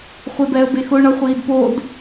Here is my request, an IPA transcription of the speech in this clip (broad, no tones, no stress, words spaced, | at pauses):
χʷebɛə̯bexʊ ɳʌχʷiːdpod